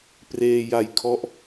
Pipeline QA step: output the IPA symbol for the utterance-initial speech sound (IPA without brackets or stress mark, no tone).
p